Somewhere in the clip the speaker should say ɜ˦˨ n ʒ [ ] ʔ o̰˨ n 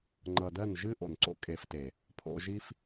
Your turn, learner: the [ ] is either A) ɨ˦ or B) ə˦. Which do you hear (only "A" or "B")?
A